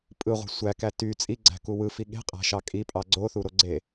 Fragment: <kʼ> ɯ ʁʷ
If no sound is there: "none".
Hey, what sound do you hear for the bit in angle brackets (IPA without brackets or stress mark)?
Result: pʼ